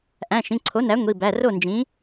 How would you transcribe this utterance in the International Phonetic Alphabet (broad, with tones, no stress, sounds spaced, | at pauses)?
ʔ æ̃˩˧˩ ʃ ĩ˩˧˩ ǀʰ o˩˥ n æ˩˥ ŋʷ i˩˧˩ b æ˩˧˩ r o˥˩ n d͡ʒ ĩ˩˥